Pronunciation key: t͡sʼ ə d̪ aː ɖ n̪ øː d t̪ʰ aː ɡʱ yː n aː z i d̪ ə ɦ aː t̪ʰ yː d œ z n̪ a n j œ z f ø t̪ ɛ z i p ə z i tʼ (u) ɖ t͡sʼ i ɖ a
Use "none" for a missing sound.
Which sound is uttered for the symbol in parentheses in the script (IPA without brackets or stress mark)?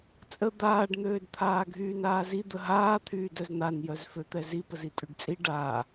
y